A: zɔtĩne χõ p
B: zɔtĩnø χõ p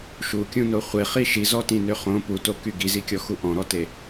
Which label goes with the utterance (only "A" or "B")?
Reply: B